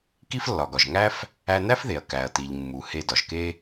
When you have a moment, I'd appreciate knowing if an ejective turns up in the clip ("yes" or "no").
no